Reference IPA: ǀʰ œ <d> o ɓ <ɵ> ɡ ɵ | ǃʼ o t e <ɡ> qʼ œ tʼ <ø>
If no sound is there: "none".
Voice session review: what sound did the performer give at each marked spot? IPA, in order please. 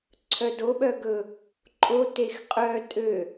d, œ, x, ø

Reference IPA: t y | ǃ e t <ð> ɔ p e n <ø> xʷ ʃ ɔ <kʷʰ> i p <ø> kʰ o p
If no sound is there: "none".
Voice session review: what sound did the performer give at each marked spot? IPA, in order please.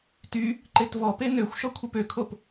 v, ø, kʷʰ, ø

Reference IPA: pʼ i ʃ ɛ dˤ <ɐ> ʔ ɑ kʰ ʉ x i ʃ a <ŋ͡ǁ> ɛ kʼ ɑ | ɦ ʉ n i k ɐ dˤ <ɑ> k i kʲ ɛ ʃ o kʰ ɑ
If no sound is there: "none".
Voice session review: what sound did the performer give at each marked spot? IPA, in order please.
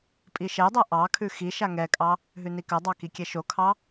a, ŋ, ɑ

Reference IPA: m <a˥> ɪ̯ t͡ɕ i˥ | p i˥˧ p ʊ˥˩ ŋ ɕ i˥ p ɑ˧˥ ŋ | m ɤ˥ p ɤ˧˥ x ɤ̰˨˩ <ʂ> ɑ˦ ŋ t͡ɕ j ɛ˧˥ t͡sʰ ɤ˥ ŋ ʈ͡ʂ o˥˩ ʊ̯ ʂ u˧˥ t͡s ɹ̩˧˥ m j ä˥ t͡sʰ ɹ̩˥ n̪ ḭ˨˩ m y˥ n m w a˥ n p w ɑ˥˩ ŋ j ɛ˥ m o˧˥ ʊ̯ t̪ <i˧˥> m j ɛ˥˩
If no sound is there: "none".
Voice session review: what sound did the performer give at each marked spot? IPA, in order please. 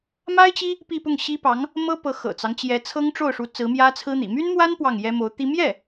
a˥, t͡s, i˥

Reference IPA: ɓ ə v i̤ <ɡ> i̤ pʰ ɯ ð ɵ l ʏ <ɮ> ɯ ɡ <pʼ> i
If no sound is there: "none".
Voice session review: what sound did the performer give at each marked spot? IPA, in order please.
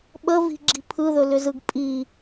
ɡ͡ǁ, z, pʼ

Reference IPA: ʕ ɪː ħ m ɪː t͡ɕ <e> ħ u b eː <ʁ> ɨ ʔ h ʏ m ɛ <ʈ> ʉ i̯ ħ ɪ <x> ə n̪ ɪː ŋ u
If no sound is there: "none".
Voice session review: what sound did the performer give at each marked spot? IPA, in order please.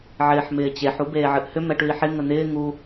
e, ʕ, ʈ, ŋ

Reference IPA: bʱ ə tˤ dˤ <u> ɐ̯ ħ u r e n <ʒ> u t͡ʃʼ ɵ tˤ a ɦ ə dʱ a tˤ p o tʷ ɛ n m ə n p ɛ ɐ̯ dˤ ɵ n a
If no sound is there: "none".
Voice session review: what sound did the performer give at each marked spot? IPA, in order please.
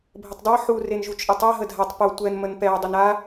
o, ʒ

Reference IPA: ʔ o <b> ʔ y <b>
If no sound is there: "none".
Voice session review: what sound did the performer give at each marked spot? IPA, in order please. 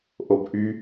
b, none

